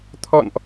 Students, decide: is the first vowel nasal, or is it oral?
oral